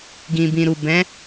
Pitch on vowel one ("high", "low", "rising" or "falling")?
low